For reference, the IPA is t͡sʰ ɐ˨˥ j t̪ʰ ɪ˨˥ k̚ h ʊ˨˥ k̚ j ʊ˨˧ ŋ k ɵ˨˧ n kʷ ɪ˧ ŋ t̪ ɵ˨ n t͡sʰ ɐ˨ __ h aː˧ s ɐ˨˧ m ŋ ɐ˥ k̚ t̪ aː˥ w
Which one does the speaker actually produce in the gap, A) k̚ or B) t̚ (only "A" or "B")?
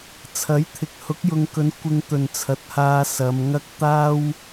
B